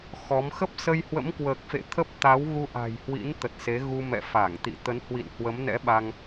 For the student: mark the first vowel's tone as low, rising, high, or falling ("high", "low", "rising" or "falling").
rising